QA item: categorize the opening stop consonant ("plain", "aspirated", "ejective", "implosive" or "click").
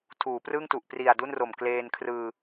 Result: aspirated